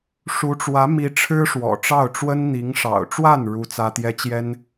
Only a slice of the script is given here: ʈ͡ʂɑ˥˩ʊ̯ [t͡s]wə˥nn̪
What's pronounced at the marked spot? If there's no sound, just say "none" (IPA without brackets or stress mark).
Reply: ʈ͡ʂ